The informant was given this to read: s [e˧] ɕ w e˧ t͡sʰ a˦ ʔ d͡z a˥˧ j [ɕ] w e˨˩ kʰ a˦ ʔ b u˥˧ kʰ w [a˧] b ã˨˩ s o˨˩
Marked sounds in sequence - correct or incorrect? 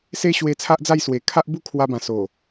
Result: incorrect, incorrect, correct

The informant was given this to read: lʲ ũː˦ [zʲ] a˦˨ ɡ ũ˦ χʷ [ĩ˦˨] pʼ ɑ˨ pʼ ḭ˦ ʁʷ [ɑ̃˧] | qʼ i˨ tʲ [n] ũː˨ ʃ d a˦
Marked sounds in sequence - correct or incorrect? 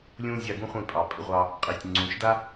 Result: correct, correct, incorrect, incorrect

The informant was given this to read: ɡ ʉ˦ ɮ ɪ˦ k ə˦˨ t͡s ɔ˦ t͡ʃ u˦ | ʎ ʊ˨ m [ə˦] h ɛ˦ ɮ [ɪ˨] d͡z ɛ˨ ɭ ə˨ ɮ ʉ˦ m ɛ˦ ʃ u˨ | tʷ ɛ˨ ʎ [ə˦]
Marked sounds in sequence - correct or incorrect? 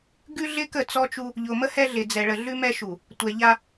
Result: correct, correct, incorrect

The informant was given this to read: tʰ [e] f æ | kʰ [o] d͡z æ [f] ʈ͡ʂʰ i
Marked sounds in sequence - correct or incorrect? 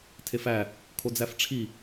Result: correct, correct, correct

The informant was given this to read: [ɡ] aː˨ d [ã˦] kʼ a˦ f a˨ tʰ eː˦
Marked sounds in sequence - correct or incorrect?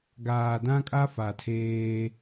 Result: correct, correct

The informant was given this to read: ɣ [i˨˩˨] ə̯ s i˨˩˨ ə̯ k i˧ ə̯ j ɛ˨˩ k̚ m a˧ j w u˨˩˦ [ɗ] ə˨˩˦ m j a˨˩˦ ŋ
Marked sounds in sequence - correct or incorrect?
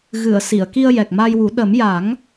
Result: incorrect, correct

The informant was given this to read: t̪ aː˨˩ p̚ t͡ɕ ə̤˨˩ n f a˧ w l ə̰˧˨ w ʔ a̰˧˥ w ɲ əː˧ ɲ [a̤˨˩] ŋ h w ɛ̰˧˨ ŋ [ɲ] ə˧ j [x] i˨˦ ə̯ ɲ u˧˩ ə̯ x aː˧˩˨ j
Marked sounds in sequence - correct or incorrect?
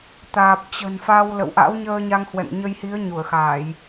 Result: incorrect, correct, incorrect

